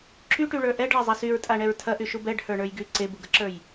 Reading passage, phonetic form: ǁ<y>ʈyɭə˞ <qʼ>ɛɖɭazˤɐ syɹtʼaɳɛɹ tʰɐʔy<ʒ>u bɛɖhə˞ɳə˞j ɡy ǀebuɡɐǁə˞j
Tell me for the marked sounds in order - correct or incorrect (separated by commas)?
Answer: correct, incorrect, incorrect